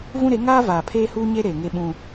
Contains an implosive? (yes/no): yes